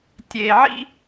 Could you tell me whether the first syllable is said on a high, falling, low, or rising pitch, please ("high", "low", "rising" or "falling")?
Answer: low